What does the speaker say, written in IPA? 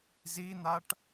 z i n̪ a ʈ

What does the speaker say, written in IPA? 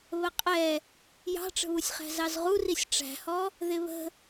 β ə qʼ ɛ | j ɑ̤ ʈ͡ʂ ə̤ β u sʲ χ æ̤ z ɑ z ʁ u r i sʲ ʈ͡ʂ æ̤ h ɔ | ð ɪ β ə̤

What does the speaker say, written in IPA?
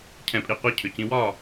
cʰ ɛ̃˨˩˦ pʼ i˨˩ qʷ ɛ˧ cʰ ʏ˨˩ c ĩ˧ w ɒː˥˨

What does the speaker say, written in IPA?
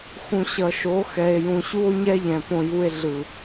x ũ˨ ɕ ʌ˨ ʃ o˨˦ x ɛ˨ e̯ j ũ˨ ɕ u˦ o̯ ɲ ɛ˦ ʎ ɛ̃˨ p õ˧ j u˧ e̯ ɮ ɯ˨

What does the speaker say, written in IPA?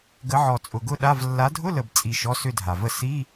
ɡ ə˨˦ ʕ ɔ˨˩ t͡sʼ ʊ˨˩ ɡ ʊ˥˧ ɗ a˧˥˧ v lː a˨˦ dʱ ʊ˧˥˧ l ə˨˩ b t͡sʼ i˨˩ ʃ ɔ˧˥˧ s ʏ˥˧ dʱ a˨˩ v ə˥˧ s i˧˥˧

